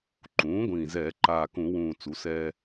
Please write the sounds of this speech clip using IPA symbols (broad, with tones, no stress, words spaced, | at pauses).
ǃũː˩˧ ɡʷĩː˨˩zɛː˧˩˧ ǃaː˨˩kũ˧˩˧wũː˨˩ t͡su˩˧sɛː˧